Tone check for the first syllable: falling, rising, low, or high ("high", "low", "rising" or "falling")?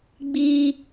high